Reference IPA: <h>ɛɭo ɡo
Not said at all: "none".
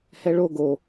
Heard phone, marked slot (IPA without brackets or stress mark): h